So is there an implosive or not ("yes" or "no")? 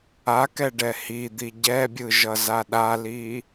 yes